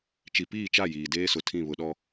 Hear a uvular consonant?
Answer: no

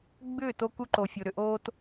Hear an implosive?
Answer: no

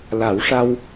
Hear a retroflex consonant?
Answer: yes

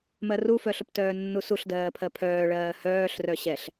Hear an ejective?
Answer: no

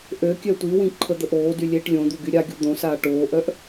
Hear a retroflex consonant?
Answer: yes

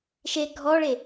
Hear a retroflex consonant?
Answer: yes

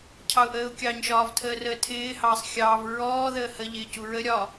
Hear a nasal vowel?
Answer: no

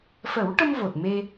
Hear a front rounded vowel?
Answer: no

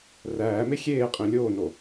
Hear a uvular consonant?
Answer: yes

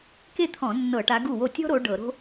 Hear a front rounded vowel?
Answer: no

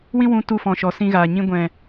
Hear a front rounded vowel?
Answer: no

